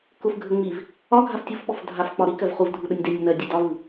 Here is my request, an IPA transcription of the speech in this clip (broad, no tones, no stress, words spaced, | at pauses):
kʊfɡʱə ŋ͡miv | ɒ ɡʱaftʲufɓɔf dʱafk͡pɒ ɾi kɜvχuvdʱu ɗənʲdenʲʊ nɜdʲe dɒvɯ